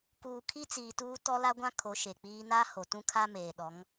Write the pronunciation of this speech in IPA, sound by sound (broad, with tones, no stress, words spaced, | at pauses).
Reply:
kuː˨kʰi˦ t͡siː˨tuː˦tɔ˦ la˦ɡʷã˦kʰo˨˦ ʃe˨k͡piː˦ na˦ ho˨tũ˦kʰa˦ meː˨ɗɔ˨˦ŋ